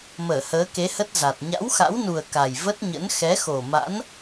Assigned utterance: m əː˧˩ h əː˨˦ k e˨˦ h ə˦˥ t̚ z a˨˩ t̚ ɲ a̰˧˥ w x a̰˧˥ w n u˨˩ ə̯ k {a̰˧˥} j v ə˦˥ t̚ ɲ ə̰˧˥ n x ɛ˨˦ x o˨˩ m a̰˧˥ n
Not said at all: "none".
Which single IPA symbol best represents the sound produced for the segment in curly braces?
a˨˩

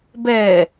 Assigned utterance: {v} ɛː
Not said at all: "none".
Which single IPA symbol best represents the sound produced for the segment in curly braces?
b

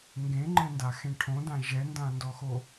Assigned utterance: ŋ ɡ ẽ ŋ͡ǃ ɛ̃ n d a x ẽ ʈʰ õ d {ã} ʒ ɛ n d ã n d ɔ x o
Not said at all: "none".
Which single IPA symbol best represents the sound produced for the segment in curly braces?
ã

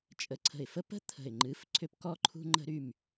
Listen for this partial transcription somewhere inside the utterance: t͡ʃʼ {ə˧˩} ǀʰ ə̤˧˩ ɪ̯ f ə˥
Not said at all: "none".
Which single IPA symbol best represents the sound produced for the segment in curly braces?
ə˧˩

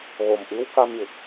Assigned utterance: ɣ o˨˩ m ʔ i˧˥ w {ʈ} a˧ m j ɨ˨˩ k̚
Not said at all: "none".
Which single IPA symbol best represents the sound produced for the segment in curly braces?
k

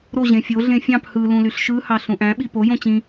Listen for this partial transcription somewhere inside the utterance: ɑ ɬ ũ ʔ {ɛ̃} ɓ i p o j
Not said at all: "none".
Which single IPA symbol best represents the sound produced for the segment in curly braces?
æ̃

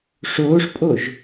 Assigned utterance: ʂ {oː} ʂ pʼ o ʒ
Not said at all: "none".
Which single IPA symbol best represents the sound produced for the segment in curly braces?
oː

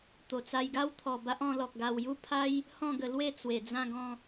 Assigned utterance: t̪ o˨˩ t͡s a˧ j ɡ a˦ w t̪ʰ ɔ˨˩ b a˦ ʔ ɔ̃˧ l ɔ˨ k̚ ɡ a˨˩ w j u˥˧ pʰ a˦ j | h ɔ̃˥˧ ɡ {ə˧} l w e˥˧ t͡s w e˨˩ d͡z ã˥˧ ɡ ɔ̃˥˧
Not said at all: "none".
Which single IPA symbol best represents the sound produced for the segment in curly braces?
ə˧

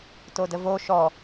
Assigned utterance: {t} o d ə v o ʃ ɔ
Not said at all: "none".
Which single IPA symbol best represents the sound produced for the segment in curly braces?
t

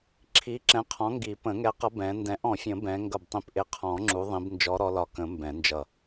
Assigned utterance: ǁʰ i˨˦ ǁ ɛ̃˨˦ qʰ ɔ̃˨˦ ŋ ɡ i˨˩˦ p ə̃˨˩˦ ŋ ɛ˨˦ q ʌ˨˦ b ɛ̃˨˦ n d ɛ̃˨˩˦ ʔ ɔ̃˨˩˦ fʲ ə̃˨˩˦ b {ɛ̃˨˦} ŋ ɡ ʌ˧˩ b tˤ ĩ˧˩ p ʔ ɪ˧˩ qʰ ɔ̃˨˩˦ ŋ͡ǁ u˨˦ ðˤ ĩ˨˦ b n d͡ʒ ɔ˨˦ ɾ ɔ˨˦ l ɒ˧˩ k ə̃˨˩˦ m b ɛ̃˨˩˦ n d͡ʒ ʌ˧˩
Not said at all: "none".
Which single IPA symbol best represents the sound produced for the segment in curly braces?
ɛ̃˨˦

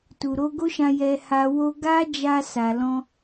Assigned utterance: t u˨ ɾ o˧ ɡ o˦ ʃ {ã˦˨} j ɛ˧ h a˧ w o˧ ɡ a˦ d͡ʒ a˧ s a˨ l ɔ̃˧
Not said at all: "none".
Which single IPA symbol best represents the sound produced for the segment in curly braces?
ã˧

